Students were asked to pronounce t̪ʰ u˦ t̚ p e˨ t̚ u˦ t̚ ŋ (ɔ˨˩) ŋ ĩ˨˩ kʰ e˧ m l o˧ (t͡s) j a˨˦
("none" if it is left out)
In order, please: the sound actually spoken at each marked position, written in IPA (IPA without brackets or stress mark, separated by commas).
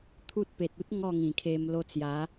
ɔ˥˧, t͡s